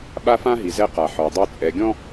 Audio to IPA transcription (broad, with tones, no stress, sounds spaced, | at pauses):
ɓ a˦ f ã˦ ɦ i˨ z ɛ˦ q a˨ ħ ɔ˨ dˤ u˦˨ t͡sʼ ɛ˨ ɡʲ ɔ̃˦